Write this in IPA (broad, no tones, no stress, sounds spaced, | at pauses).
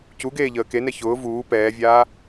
c u ɡ eː ʎ əː k e n ɛ ç ʊː v uː p ɛː vʲ aː